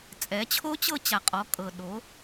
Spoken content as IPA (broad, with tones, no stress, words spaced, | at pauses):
t͡sʼɛ˩˧t͡ɕʰo˧˥t͡ɕɤ˧ t͡ɕa˩qʼɔ˩˧ kʼɤ˩ ɗo˩˧